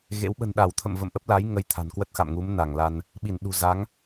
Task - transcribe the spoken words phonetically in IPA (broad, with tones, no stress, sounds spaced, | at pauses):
ɣ ḛ˧˥ w ɓ ə̤˨˩ n ɗ a˧˩ w t̪ʰ ə̰˧˨ m v ə̰˧˨ m ʔ ə˦˥ p̚ l a˨˦ j ŋ ə˨˦ j t̪ʰ a̤˨˩ n k w ə˦˥ t̚ x a̰˧˨ m ŋ u˨˦ m n a˧˩ ŋ l a˧ n | ɓ i˧˩ n ɗ ṳ˨˩ z a˨˦ ŋ